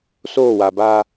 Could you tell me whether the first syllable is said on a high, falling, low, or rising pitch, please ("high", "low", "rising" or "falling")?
falling